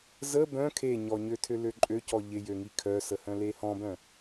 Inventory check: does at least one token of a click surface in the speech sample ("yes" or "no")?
yes